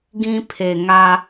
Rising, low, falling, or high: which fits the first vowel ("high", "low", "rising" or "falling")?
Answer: high